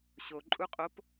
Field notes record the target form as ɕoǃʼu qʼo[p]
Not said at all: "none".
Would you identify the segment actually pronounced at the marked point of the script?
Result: p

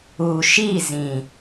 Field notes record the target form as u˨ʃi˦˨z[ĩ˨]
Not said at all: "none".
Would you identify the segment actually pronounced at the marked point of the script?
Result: ĩ˨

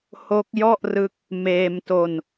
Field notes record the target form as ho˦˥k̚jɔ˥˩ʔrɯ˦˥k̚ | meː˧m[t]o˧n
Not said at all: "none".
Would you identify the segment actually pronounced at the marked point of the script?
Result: t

